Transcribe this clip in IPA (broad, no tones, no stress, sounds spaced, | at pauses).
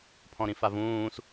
pʰ ɔ̃ ɾ ĩ f a v ũː s